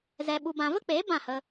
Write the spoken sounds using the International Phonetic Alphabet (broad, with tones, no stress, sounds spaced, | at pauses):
z ɛ˧ ɓ u˧ b ã˧ v ə˦ k͡p eː˨˦ b ã˦˨ h ə˧